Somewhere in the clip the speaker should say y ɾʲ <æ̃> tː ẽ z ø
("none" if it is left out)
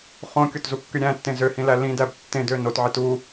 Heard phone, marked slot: æ̃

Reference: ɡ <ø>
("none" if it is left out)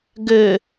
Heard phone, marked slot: ø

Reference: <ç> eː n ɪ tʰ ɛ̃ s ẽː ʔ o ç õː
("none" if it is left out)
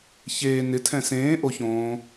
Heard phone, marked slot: ç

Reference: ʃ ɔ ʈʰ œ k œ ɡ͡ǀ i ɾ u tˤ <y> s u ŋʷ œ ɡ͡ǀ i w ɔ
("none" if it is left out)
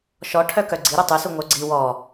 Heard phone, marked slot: u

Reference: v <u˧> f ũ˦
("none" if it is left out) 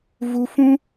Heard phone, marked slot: u˧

